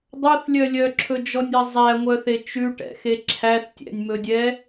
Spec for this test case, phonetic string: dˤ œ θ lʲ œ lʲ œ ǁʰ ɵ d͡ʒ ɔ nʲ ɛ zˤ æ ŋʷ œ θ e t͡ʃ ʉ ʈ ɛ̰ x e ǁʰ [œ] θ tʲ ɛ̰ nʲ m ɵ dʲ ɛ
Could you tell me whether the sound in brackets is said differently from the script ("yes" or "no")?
yes